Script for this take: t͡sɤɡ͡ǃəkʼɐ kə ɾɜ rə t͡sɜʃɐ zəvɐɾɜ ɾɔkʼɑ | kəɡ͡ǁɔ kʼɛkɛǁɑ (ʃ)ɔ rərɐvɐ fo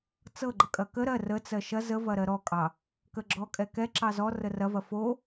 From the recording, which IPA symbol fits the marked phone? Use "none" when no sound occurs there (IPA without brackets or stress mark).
z